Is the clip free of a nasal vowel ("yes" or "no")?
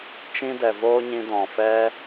no